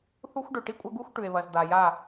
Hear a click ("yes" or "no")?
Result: no